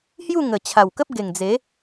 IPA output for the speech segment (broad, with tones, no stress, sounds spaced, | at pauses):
h j u˥˧ ŋ ə˨˩ t͡ɕʰ a˨˩ w k ə˦ p̚ ɡ e˨˩ ŋ d͡z e˨˦